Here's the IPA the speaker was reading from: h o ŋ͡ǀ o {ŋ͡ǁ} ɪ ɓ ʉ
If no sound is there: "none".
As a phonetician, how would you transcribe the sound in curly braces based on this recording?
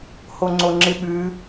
ŋ͡ǁ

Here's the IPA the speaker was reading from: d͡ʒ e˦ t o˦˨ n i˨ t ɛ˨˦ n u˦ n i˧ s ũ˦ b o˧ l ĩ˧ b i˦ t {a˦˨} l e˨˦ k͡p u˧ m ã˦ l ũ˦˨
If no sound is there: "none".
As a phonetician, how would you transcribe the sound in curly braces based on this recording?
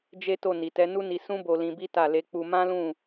a˦˨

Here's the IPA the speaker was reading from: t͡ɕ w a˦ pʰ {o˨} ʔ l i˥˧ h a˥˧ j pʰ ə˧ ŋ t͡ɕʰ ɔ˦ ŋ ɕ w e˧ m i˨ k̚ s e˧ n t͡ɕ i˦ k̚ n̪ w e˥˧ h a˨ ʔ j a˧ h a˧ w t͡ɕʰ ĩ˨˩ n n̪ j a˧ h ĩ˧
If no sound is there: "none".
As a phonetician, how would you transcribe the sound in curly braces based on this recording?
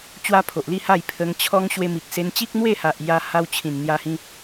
o˨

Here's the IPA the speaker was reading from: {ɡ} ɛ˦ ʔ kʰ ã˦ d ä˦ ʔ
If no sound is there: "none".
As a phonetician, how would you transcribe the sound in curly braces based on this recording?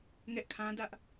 ŋ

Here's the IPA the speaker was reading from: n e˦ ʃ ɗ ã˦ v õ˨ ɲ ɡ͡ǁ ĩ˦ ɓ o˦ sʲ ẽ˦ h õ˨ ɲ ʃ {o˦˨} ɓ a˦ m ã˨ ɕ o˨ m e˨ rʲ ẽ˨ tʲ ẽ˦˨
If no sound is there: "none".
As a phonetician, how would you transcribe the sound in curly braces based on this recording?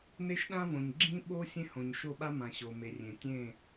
o˦˨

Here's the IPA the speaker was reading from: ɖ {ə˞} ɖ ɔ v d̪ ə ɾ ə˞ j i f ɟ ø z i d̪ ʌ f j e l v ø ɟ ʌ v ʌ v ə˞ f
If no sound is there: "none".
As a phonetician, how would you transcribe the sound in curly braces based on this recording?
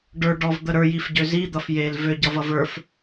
ə˞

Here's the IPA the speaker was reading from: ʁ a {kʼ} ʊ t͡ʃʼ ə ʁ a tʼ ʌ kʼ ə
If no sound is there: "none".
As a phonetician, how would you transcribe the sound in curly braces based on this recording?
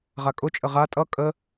kʼ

